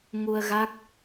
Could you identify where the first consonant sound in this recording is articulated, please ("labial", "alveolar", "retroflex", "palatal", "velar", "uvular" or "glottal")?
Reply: velar